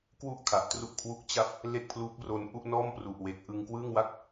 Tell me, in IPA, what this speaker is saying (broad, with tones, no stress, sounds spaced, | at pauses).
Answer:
k w u˥˩ ʔ kʰ a˨˩ ʔ t r u˥˩ ʔ kʰ w u˦˥ k̚ t͡ɕ a˥˩ p̚ | l e˥˩ k̚ pʰ l uː˦˥ p̚ r o˧ n ʔ u˥˩ ʔ n ɔː˥˩ m p r u˨˩ ʔ w e˨˩ k̚ ʔ ɯ˧ ŋ k w ɯː˥˩ ŋ w a˥˩ k̚